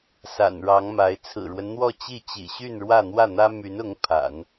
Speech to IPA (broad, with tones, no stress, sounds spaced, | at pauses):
s a̰˨˩ n ɻ ɑ˧˥ ŋ m a˧˥ ɪ̯ t͡sʰ ɹ̩˨˩ ɻ w ə˦ n n̪ w ɔ˥˧ t͡ɕ i˥˩ t͡ɕ ḭ˨˩ ɕ y˥˧ n ɻ w ä˥˧ n̪ w ä˥˩ n̪ ä˥ m y˧˥ n ʊ˧˥ ŋ pʰ a̰˨˩˦ n